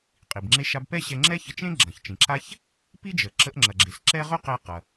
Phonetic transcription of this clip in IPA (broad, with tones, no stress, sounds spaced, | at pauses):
qʼ i˩ b ŋ͡ǁ e˧ ʃ a˧ b p ɛ˥ ɕ ɛ˧ ŋ͡ǁ ɛ˥ ç ə˧ t͡ʃ ẽ˥ ɡ͡ǁ ɐ̃˩ ç t͡ʃ ĩ˩ ǁ a˥ ç | p i˥ d͡ʒ ə˩ ǁ ə˧ ʔ ŋ͡ǁ ɐ˩ ɡ͡ǁ e˩ s ǁ ɛ˥ ʁ ɵ˥ q e˧ q ɐ˩